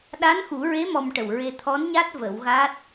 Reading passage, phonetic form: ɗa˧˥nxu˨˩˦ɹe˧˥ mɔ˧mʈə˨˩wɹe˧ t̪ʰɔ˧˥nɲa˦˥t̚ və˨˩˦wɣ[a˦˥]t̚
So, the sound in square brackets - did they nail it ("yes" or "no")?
yes